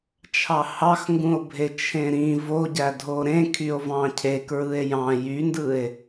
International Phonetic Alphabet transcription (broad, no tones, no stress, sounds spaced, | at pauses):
t͡ʃʰ ɑ h ɑ x ŋ ɡ ũ o̯ bʱ e t͡ʃʰ ẽ ɾ ĩ v o ɟ æ dʱ o ɾ ẽ kʰ y o̯ v ɑ̃ cʰ e k ɹ ɯ e̯ j ɑ̃ j y n d ɯ e̯